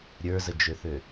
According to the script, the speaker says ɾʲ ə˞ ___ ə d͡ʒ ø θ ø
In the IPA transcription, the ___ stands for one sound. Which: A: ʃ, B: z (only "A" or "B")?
B